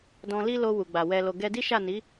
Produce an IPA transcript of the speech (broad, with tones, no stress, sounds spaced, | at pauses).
d ɔ̃˧ l i˦ l o˧ w u˨ ɡ͡b a˨ w ɛ˨ l o˨ ɡ ɛ˧ d i˦ ʃ a˦˨ n i˨˦